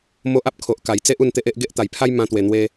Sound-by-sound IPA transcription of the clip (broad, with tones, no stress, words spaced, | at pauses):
mo˦ʔa˦p̚ kʰo˨ʔka˨˩jt͡se˦ʔ u˥˧nt̪e˦ʔe˦ʔ ɡe˦ʔt̪a˨˩jpʰa˦j mã˧t̪we˨˩n̪we˧